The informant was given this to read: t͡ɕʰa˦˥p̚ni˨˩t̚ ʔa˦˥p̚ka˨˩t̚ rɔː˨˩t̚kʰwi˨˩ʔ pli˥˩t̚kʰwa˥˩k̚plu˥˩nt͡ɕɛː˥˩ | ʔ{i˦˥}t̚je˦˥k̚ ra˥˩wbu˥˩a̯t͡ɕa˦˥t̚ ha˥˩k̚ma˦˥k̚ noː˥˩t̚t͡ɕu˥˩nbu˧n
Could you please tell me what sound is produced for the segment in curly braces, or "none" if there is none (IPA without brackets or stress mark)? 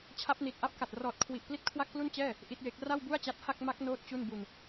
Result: i˦˥